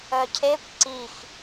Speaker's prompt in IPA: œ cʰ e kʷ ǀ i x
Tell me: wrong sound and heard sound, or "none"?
none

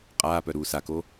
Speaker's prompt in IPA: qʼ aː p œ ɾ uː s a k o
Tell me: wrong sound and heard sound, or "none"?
none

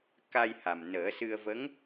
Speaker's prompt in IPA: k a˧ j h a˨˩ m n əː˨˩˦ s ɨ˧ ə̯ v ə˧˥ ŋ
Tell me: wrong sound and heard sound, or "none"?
none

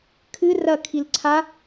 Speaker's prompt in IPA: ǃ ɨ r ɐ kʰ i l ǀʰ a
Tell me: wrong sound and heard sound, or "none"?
ǃ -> kʰ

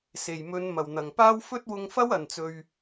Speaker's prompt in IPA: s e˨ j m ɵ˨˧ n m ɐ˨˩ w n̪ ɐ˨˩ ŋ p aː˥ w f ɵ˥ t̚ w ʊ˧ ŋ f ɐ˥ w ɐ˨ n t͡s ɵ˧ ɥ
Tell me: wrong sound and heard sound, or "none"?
e˨ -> e˨˩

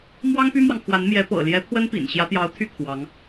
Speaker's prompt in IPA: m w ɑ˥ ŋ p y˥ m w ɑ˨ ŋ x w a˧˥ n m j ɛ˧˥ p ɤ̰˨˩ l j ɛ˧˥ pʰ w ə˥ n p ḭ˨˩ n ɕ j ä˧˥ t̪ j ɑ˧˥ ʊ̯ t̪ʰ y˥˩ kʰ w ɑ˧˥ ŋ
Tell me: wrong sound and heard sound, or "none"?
none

